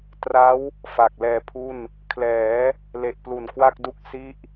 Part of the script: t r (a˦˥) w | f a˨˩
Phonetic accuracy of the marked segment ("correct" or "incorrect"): correct